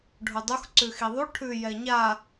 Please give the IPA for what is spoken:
ɖʱ u dˤ u x ǀ ʉ x i ðˤ u ʈʰ ʉ j ɛ ɲ a

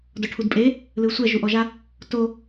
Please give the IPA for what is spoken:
d ɔ ʈʰ u d pʼ e | l ɯ sʷ ɛ ʒ u ʔ ɔ ʒ a | t o

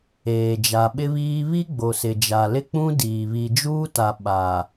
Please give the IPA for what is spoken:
eː˨ d͡ʒ a˨ ɓ ɪ˦ β iː˦ β i˦ ɡ͡b o˨ s ɪ˨ d͡ʒ a˨ l ɪ˦ k͡p ũ˦ d iː˨ β i˨ d͡ʒ uː˦ t a˨ ɓ a˨

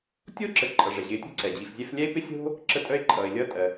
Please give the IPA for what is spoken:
tʲ o˥ ǁ ə˨ ǃʼ ʌ˩ ʐ ɛ˩ ʑ ɪː˨ tʲ ṳ˥ ǀ ɛ˩ d͡ʑ i˩ f zʲ ɛ˦ f lʲ ɛ˦ ɪ̯ p ɪ˦ sʲ o̤˦ | ǁ ə˦ tʼ œ˥ ɪ̯ ǃʼ ʌː˩ ɪ̯ lʲ ʌː˦ tʼ ɜ˩

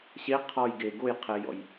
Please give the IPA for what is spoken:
ɕ e qʰ ɔ j ɡ e ɡ o j qʰ ɛ j ɔ̰ j

